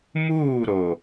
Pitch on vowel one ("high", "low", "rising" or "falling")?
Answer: falling